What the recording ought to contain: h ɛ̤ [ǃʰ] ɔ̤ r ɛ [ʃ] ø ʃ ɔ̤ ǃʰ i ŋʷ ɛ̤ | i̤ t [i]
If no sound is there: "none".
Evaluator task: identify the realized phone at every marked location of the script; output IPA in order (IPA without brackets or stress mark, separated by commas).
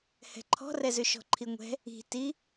ǃʰ, z, i